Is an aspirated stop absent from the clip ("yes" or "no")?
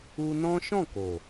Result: yes